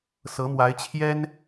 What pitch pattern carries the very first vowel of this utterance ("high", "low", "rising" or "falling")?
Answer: rising